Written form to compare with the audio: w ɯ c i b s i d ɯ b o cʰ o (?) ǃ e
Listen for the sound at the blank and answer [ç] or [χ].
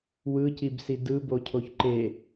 ç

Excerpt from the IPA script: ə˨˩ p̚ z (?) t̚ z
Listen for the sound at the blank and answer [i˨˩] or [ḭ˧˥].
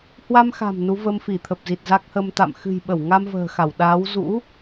i˨˩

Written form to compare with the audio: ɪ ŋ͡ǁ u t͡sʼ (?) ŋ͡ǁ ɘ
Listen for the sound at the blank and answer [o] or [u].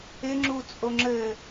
o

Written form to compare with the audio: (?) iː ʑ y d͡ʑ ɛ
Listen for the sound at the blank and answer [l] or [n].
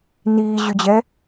n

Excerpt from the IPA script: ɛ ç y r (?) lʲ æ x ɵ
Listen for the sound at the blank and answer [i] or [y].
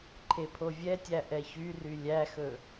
y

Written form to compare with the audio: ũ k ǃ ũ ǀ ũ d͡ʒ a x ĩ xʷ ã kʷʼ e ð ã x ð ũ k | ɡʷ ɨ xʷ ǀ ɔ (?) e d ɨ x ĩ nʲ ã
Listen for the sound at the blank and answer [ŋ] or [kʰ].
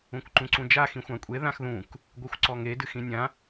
ŋ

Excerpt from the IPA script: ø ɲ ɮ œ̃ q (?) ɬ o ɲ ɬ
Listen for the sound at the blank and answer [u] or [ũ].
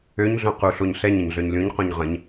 u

